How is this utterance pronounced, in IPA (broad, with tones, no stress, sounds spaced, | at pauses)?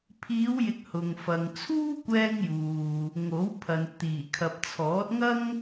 pʰ iː˨˧ w j ɪ˨ k̚ h ʊ˨ ŋ f ɐ˨ ŋ t͡sʰ uː˥ kʷ ɛː˧ ŋ j uː˨ | ŋ o˨˥ w pʰ ɐ˨ n t̪ iː˨˩ kʰ ɐ˨ p̚ t͡sʰ ɔː˨˥ t̚ ŋ ɐ˥ ŋ